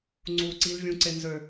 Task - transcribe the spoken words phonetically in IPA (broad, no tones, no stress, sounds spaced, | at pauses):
ŋ͡ǀ uː ǀ i l vʲ ũ ǀ e n z ø